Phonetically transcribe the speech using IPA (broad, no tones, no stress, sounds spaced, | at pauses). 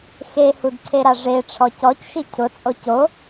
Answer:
x e h u d ǀʰ e ɾ a ʐ e ʈ͡ʂʰ ɔ c ɔ c ʃ i cʰ ʊ t͡sʼ o c o